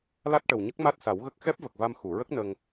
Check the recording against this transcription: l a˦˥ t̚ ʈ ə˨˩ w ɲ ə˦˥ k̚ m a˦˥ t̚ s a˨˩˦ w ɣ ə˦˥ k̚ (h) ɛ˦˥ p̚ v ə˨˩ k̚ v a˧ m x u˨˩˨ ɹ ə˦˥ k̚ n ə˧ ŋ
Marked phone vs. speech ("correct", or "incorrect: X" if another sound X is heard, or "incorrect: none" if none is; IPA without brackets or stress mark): incorrect: x